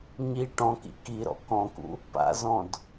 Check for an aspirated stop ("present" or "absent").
absent